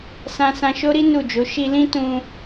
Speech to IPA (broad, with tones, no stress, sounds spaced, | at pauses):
s ã˧ s ã˧ ʃ o˦ ɾ i˦ n u˦˨ d͡ʒ o˨˦ ʃ i˧ l ĩ˦ t ũ˧